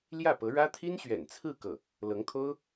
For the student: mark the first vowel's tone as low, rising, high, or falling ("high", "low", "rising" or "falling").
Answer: falling